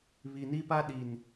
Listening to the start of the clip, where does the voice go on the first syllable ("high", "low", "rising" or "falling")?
low